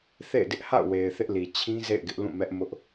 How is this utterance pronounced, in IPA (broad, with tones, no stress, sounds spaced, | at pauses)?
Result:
θ ḛ˦˨ ɪ̯ d ɪ˦ ʔ h a̰˦˨ ʊ̯ w e˨ ɪ̯ θ ɪ˦ ʔ l i˨ t͡ɕʰ ĩ˦ z ḛ˦˨ ɪ̯ ɡ ɪ˦ ʔ l ũ˦˨ m ɛ˦ ʔ m ʊ˦ ʔ